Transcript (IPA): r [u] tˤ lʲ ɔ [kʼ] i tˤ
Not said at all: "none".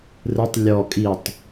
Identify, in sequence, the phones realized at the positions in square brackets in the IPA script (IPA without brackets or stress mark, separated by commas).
ɯ, kʼ